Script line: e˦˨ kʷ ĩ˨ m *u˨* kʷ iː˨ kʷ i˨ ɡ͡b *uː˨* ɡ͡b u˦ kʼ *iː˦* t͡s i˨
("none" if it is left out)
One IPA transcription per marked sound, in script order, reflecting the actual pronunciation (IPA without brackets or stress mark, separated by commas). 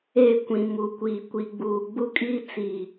u˨, uː˨, iː˦